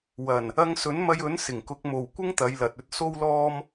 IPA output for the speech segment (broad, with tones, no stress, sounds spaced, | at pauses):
w ɐ˨˩ n | ɐ˧ ŋ s ɵ˨˥ n m ɐ˧ j ɵ˨˥ n s ɪ˨˩ ŋ k ʊ˨˥ k̚ m o˨ w kʷ ɪ˥ ŋ t̪ ɐ˨˧ j l ɐ˨ t̚ ɵ˧ t̚ s o˥ w l ɔː˥ m